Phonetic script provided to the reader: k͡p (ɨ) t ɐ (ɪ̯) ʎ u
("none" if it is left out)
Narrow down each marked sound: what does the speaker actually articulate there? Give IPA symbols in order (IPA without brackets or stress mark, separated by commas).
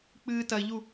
ɨ, ɪ̯